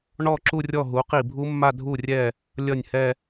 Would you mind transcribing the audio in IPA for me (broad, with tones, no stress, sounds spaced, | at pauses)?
ɳ ɔ˥˧ ǁ u˥˧ rʲ ɔ˥˩ ɦ u˩˥ q i˧˩ bʱ u˦˥ mː a˥˧ dʱ u˧˩ rʲ ɛ˧˩ | lʲ ʌ˥˩ nʲ h ɛ˥˧